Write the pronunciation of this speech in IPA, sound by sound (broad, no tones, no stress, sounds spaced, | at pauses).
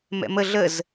m ɛ̰ m ə ɮ ə z